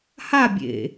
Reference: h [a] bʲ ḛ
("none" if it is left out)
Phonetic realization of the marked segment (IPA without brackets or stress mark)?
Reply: a